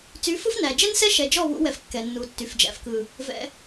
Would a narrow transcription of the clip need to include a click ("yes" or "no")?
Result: no